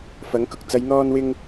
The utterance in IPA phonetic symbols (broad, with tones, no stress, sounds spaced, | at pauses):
f ɐ˨˥ ŋ k ʊ˨ k̚ t͡s ɐ˨˧ j n̪ ɔː˧ n w ɪ˧ ŋ